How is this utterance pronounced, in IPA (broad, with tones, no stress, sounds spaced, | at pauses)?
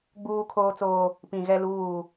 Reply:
ɡ͡b uː˦ kʰ oː˦ t͡s oː˦ | p ĩ˨ ɣ ɛ˦ l uː˦˨